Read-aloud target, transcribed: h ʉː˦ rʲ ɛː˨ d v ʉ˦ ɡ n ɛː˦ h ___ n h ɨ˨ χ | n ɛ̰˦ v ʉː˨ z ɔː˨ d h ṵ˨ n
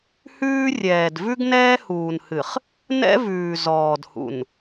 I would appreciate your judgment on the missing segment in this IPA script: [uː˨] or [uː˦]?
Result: uː˨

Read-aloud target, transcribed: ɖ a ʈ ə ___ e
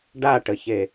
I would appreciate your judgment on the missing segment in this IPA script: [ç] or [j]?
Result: ç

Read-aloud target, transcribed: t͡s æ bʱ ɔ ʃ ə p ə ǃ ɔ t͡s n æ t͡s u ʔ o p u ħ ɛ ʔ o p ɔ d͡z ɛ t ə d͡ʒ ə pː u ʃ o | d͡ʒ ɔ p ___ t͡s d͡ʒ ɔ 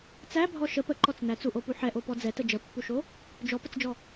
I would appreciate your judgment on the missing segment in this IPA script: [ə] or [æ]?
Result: ə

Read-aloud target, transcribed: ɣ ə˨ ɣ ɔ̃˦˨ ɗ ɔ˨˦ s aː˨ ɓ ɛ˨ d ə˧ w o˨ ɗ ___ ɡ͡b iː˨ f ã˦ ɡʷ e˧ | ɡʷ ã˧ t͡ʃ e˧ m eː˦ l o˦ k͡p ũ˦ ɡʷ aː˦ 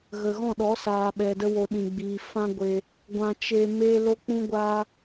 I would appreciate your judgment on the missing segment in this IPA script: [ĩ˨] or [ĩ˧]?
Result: ĩ˨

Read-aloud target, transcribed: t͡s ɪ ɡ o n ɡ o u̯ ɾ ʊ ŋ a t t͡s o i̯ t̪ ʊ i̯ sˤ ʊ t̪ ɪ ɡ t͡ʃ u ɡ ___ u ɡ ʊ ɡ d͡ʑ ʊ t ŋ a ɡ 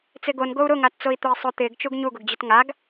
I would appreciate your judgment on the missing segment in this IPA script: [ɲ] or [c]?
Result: ɲ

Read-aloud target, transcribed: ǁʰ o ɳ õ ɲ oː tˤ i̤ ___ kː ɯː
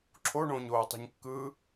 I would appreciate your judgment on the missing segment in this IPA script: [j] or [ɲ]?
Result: ɲ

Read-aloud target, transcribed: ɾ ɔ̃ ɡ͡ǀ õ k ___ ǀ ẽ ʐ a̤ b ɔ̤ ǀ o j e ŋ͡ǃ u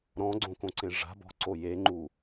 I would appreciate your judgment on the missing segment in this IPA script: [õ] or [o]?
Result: õ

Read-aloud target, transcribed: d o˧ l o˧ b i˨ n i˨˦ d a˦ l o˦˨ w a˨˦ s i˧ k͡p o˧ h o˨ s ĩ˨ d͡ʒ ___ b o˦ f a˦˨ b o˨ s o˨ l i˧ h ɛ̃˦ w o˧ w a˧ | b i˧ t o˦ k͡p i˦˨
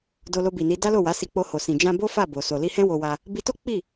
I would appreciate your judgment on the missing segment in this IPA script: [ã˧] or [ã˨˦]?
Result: ã˧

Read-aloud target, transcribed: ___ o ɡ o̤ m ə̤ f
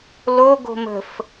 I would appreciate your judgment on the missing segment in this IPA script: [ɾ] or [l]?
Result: l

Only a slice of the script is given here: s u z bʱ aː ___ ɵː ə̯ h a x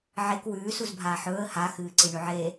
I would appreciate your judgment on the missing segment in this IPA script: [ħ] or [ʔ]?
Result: ħ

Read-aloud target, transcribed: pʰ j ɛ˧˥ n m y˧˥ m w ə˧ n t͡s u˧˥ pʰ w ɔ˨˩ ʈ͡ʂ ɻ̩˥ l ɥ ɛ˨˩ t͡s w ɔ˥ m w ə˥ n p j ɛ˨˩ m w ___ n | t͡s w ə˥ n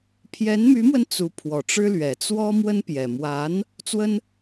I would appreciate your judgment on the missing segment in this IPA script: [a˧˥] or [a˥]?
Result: a˧˥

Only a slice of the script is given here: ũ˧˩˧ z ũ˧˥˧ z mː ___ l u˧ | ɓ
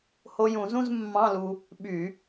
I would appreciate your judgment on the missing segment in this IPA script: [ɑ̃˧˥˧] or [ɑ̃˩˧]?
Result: ɑ̃˧˥˧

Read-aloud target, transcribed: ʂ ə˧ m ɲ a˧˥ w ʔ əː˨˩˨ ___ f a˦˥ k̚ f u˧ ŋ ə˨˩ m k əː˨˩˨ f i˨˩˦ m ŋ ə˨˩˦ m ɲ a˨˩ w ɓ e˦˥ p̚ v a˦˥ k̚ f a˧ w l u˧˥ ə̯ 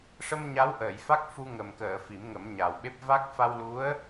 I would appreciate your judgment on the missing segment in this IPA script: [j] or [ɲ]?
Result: j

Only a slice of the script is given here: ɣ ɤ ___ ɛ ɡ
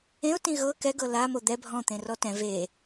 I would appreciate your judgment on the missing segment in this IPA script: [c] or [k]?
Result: k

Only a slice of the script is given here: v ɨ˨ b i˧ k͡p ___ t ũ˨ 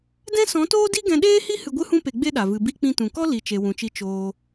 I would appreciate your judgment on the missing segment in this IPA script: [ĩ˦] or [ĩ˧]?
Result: ĩ˧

